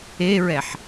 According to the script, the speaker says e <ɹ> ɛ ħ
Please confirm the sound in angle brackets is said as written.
yes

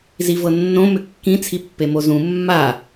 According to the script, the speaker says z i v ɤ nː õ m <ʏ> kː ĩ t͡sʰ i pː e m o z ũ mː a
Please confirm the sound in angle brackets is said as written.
yes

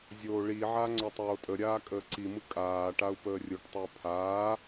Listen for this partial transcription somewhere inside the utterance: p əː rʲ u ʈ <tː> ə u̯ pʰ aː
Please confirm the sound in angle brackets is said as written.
no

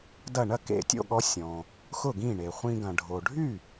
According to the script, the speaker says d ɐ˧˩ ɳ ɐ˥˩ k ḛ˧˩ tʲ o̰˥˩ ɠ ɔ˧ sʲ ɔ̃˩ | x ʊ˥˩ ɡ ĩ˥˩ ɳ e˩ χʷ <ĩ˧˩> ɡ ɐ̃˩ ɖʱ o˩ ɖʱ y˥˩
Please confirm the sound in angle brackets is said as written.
no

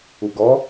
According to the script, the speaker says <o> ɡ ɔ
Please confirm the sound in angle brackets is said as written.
no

